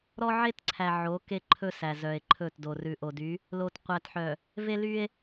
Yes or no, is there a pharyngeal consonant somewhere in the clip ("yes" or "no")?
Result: yes